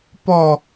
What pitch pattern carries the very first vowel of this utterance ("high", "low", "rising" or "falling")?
falling